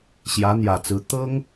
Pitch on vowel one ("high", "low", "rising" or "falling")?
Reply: rising